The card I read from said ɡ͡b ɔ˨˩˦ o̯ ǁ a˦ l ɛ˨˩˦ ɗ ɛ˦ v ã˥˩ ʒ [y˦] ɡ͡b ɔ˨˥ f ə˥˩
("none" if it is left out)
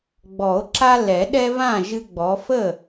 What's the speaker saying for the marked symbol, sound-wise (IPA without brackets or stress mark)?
ɨ˦